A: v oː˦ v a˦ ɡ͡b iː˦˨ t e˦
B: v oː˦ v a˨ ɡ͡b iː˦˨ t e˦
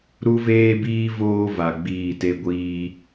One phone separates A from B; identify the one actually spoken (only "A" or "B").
B